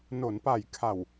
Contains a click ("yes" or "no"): no